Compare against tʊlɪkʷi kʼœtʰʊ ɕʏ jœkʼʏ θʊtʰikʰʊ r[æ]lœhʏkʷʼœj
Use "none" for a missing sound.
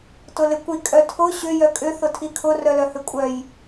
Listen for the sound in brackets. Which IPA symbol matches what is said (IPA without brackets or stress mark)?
œ